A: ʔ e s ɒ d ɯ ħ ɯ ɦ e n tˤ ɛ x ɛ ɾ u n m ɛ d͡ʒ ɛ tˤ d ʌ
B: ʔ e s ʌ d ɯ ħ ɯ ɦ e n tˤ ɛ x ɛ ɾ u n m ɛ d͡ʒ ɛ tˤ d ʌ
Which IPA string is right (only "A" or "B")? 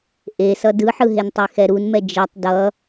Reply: B